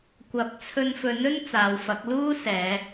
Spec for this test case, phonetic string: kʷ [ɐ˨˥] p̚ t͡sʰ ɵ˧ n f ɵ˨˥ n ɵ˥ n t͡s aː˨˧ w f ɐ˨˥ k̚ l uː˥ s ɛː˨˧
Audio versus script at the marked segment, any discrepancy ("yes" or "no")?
no